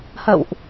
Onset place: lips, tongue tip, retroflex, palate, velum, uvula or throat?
throat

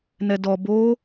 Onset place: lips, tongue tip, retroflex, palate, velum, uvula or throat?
tongue tip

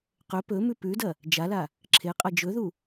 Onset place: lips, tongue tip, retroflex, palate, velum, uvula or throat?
uvula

